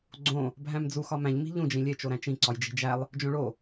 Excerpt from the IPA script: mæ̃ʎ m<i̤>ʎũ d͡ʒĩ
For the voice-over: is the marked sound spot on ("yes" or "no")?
yes